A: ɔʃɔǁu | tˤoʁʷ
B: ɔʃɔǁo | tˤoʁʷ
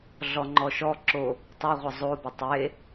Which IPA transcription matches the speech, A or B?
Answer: B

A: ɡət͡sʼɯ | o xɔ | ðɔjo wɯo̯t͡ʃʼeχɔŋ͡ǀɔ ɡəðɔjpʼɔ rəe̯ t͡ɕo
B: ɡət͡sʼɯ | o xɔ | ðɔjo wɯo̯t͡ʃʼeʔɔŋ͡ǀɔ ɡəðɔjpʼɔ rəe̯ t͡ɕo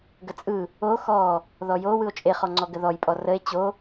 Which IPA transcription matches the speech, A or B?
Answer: A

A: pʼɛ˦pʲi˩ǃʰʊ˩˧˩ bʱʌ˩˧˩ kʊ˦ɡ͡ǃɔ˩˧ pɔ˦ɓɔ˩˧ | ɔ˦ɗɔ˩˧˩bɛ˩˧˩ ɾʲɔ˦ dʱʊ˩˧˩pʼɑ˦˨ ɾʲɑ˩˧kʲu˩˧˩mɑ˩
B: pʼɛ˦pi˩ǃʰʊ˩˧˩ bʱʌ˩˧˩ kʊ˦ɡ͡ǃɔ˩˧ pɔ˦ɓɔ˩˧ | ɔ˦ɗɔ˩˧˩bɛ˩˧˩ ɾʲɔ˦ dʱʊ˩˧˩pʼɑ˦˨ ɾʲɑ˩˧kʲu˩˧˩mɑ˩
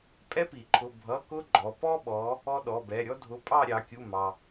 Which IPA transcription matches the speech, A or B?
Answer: B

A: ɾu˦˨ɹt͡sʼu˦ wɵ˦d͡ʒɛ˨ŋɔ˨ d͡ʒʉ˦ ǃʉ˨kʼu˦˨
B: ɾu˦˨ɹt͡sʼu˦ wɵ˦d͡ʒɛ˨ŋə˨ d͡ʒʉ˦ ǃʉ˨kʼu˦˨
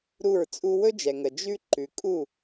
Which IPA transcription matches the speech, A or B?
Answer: B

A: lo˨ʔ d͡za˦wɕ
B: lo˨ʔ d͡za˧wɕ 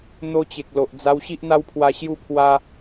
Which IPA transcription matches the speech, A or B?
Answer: B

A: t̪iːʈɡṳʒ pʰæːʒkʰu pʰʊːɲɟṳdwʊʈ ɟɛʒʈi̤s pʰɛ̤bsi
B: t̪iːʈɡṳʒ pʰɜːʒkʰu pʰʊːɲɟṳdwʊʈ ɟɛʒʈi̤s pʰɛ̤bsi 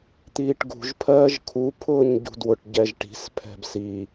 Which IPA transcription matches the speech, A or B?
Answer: B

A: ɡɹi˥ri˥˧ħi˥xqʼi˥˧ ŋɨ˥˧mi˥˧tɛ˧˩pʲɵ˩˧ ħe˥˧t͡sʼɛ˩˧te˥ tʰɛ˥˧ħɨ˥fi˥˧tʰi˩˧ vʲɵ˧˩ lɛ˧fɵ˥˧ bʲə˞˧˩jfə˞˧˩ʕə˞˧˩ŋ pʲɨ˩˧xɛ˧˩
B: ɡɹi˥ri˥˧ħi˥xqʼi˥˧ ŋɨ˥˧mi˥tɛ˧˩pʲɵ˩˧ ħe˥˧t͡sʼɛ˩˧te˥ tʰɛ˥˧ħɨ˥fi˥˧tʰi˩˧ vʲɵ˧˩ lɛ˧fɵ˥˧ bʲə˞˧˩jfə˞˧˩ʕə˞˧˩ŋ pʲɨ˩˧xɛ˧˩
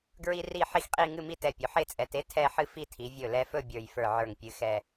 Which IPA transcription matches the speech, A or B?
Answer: B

